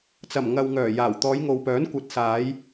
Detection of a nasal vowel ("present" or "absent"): absent